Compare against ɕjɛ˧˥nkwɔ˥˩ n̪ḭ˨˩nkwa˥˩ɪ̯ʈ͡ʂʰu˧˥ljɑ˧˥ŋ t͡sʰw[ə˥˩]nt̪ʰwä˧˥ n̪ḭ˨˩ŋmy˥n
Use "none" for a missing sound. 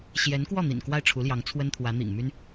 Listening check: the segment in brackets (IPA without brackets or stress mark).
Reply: ə˥